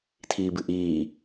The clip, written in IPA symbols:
tʰ iː b ɨ ʔ iː

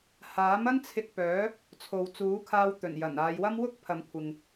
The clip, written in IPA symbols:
h aː˨˥ m ɐ˥ n t͡sʰ ɪ˧ k̚ p œː˨˥ | t͡sʰ o˨ w t͡s uː˨˥ kʰ aː˧ w t̪ ɵ˨˩ n j ɐ˨˩ n aː˨˧ j w ɐ˥ m w ʊ˥ k̚ pʰ ɐ˨˧ m kʷʰ ɪ˨ ŋ

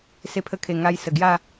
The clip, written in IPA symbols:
s e˧ pʰ ə˧ kʰ e˨˩ ŋ a˧ j s ə˨˩ ɡ j a˥˧

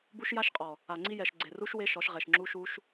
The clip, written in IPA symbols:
b u˦ ʃ j a˦ ʃ qʼ ɔ˨ | a˨ ŋ͡ǀ i˦ j ɛ˨ ʃ ɡ͡ǀ e˨ r u˦ ʃ w e˦ ʃ ɔ˨˦ ʃ ʁ ɛ˨ ʃ ŋ͡ǁ u˦ ʃ u˦ ʃ

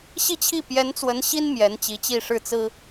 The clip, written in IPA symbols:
ɕ i˥˧ t͡ɕʰ i˥˩ p j ɛ˧˥ n t͡s w ə˧˥ n ɕ i˥ n m j ɛ˧˥ n t͡ɕ i˧˥ t͡ɕ i˥˧ ʂ ɻ̩˥˩ t͡s ɹ̩˥

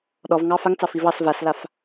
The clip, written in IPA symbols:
ɗ ɔ v ŋ ɑ f a ŋ t͡s ɑ f i v ɑ s v a s l a f

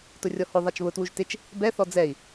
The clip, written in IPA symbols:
t ʊ rʲ ɔ h ʊ ðˤ a t͡ʃ β ʊ t w u ʒ t ɪ t͡ʃ | b ɛ θ ɔ d͡z ɛ i̯

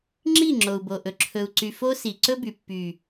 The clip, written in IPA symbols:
ŋ͡ǁ i˦˨ ŋ͡ǁ o˨ u̯ b o˨ ʔ ɵ˨ ǁʰ ɵ˨ u̯ ǀ y˨ f o˧ s i˨ ǀ ɵ˦ b y˨ pː y˨

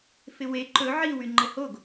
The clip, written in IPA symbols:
f ɪ w e ǃ ɵ ʕ i w y ŋ͡ǃ ə h o ɡ

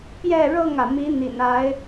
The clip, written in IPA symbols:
p j ɛ˥˨ ɻ ɤ˥˨ ŋ ä˩ m i˨˦ n̪ ḭ˨˩ n a˨˦ ɪ̯

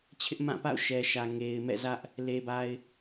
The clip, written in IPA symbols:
t͡ɕʰ ɪ˦ ʔ m ã˦˨ p a̰˦˨ ʊ̯ ʃ ɛ˨ ʃ ä˨ ŋ e˨ ɪ̯ m ɛ̰˦˨ z ä˦ ʔ | l e˨ b a˨ ɪ̯

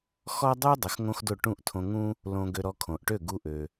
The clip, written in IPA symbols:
x ɔ˥ dˤ y˥ dˤ ə˩˥ x ŋ õ˥ x d o˥˩ ʈ ũ˥˩ ʔ tʰ õ˧ ŋ ũ˥ | l õ˧ ɡ ø˧ ɾ ɔ˧ kʰ õ˩ ʔ ʈ ø˥˩ ɡ u˧ ʔ ø˩

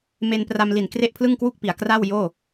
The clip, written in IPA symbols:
m e˧ n p r a˧ m l i˨˩ n k r e˥˩ ʔ pʰ l ɯ˥˩ ŋ k w u˥˩ k̚ p i˩˦ a̯ k r a˥˩ w j oː˥˩

